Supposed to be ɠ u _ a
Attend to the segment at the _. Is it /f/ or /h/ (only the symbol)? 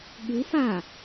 f